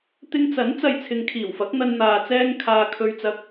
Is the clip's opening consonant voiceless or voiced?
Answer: voiceless